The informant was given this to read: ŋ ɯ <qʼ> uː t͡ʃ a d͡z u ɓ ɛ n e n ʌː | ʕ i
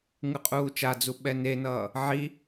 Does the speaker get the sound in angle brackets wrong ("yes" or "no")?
no